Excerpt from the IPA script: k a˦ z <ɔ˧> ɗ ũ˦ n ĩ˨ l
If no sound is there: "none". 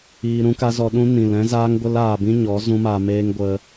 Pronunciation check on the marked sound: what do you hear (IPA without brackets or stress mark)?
ɔ˧